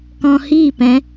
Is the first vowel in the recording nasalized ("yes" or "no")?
yes